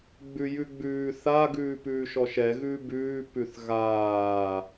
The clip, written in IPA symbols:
ɡ͡bʉjʉɡ͡bʉː θa ɡʉːpʉːʃɔʃɛ ɣʉbʉː pʉθɣaː

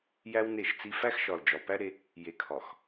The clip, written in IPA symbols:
jæ˦wne˦˨ʃt͡si˦ fæ˦xʃɒ˨l d͡ʒɒ˨pæ˦ɾe˦ | je˨ kʰɒ˨x

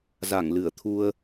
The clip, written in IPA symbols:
za˧˩ŋlɨ˧˩ə̯t̪ʰu˧ə̯

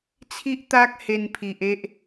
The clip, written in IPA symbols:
t͡sʰi˦ʔ t̪a˦k̚ he˧npʰi˨ʔ e˦ʔ

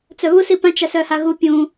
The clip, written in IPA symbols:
t͡sœβu sipãt͡ʃ asœhaɣu pʲũ

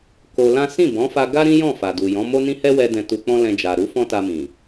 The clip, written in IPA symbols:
ko˧lã˦ sĩ˦˨bɔ̃˨˦fa˧ ɡa˦ ɾĩ˦jɔ̃˦˨ fa˨du˨ jɔ̃˨˦mo˦nĩ˦ hɛ˦wɛ˧ dɛ̃˧tu˧k͡pɔ̃˦ lɛ̃˧ d͡ʒa˨ɾu˨˦ fɔ̃˦ta˧mĩ˨

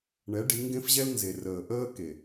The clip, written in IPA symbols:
ɳɛ˨˦ ɖi˨˦ ŋɡẽ˦fʑɛ˦lnze˨ rəː˨ʔəː˦ ke˨

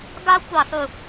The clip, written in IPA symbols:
ɡɑ˥ kʷɑ˥˧sˤu˥˧

